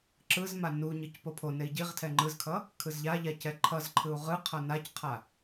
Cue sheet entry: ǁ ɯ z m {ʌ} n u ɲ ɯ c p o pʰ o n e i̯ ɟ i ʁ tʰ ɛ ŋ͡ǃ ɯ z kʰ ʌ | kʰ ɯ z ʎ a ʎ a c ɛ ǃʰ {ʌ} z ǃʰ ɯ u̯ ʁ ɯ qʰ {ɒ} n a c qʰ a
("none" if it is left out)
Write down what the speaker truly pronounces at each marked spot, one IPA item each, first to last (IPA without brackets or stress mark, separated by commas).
a, ʌ, ʌ